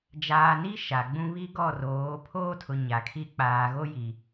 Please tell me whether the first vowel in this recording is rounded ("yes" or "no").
no